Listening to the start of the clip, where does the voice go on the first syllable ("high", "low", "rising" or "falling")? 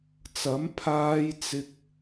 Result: rising